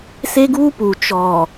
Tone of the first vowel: high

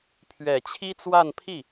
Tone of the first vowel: low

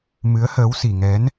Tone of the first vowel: rising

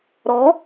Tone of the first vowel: rising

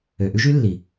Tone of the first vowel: low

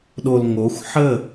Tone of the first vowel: low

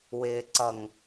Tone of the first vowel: low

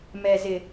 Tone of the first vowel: low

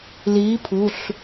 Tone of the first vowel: rising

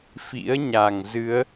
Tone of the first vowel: rising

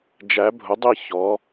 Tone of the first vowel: rising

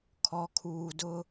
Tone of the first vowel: low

